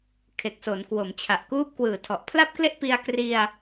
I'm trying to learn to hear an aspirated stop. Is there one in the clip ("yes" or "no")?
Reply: yes